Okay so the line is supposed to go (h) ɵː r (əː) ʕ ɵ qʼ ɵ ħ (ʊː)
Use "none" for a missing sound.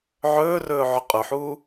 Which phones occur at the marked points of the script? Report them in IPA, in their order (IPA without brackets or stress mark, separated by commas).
ʕ, ɵː, uː